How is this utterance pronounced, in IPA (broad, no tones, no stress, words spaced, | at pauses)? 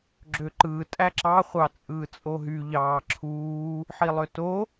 ɡ͡ǁøǃɯː tʼæǁɑ χʷɑt͡sʼɯːt͡sʼoɦy ʎɑːǁʰuː | ħilˠøto